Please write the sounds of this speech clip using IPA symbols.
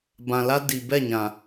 bã˨la˦ di˨ bɛ˦˨ɲã˨

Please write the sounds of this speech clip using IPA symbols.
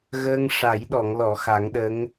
ɣəː˧ŋ ʂa˨˩˦jɗɔ˨˩˨ŋlɔ˨˩˨ xa˨˩˦ŋɗə˧˥ŋ

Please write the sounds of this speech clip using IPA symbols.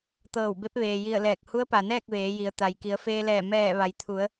t̪ɤː˧˩wbe˧˥p̚ʋeː˩ji˧˩ə̯ lɛː˧˩k̚ hu˧˥ə̯pa˩nɛː˥˨k̚ ʋeː˩˧ji˩˧ə̯ t̪a˩jki˩˧ə̯feː˧lɛː˧˩ mɛː˧˩ ʋa˩jt̪ʰu˩˧ə̯

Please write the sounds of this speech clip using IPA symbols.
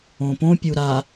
õpõpʲu ɾa

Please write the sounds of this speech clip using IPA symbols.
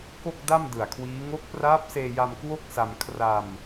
ko˥˩k̚da˥˩m dɯ˨˩a̯kʰwiː˦˥ ŋo˦˥k̚praː˦˥p̚seː˧ja˧m kwo˥˩k̚sa˧m kʰra˧m

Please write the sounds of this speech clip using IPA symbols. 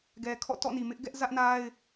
ɡɛ˨kʰɔ̰˦˨ tɔ̰˦˨ni˨mɪ˦ʔ ɡɛ˦ʔzä˦ʔna˦ɪ̯

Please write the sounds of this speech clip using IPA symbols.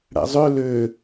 ɽæ̰zˤø lø

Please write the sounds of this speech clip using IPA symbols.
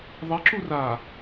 ðˤɛǁu ra

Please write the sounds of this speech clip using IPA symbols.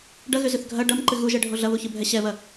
ɖɐɣʏzʏθ ɡʱɐ ɖɐm ǃɨɣuʒɛɖʱo ɮɐβuçɨbʱɛ ɕɛβɐ

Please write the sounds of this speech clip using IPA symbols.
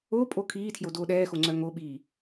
opʼo kʰiːtʰjo doːɗɛːxoŋ͡ǀœ ŋoɓiː

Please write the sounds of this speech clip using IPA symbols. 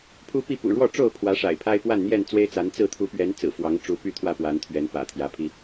pʰu˦pi˥˨ pṵ˨˩ɻwɔ˥˨ʈ͡ʂo˥˨ʊ̯pʰwä˨˦ ʂa̰˨˩ɪ̯pʰa˦ɪ̯ pwa˥˨nn̪jɛ˥˨n t͡swe˦ɪ̯t͡sa˨˦nt͡sɹ̩˥˨ t̪ʰu˨˦pɥɛ˨˦n t͡sɹ̩˨˩ fwɑ˨˦ŋʈ͡ʂu˨˦ py˥˨t̪ʰwä˥˨pwa˨˦nt̪ʰɥɛ˨˦n pä̰˨˩t̪ʰjä˨˦pʰi˦

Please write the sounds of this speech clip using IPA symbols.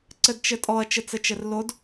ǀɘdt͡ʃɘtʼɔɐ̯ t͡ʃɘt͡sɘt͡ʃɘrlod

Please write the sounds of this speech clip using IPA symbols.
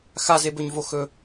xazebɵɲvo xɵ

